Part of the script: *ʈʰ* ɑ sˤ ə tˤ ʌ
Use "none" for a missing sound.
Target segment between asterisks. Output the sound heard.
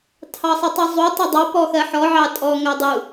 tʰ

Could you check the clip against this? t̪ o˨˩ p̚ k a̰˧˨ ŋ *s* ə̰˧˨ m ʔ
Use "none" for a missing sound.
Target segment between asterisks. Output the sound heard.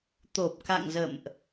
z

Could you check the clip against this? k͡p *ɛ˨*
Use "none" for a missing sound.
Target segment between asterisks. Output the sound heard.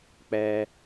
ɛ˦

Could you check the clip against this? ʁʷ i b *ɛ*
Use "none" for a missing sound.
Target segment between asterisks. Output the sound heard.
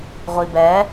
ɛ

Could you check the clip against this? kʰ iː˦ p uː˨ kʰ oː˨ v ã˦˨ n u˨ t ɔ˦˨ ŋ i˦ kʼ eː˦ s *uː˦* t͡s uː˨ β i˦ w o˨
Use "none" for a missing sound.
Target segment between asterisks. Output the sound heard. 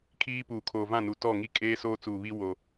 oː˦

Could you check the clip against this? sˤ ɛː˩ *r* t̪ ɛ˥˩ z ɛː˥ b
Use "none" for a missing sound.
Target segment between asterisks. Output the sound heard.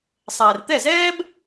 r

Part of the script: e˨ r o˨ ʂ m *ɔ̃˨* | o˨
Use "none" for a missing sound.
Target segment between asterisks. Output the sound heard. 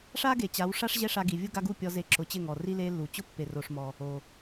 ɔ˨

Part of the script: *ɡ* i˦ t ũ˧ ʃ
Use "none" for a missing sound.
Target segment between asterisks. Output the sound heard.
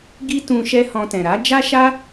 ɡ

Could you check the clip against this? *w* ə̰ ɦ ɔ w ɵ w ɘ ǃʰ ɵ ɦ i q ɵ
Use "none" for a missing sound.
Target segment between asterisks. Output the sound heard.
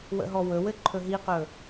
w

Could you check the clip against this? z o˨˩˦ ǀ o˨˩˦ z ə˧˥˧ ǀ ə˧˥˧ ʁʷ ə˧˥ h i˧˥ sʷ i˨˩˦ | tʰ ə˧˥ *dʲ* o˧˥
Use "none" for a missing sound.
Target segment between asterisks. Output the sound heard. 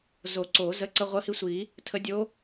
dʲ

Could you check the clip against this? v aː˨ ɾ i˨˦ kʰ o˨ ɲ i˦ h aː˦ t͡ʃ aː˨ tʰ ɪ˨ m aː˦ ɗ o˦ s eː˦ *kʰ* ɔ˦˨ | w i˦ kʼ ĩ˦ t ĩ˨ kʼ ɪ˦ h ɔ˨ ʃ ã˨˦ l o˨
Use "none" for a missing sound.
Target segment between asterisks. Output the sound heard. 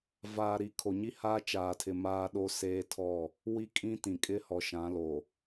tʰ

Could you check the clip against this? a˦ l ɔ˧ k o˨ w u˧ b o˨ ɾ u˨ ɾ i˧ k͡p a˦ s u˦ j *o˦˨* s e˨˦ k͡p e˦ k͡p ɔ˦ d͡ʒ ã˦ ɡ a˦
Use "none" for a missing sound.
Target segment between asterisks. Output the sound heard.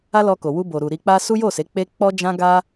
o˦˨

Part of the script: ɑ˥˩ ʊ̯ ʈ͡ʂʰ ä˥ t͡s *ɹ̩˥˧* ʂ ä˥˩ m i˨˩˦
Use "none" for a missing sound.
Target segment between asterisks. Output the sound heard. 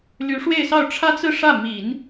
ɹ̩˥˧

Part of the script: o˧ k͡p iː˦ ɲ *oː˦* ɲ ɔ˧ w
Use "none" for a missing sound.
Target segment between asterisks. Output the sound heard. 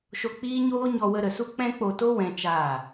oː˦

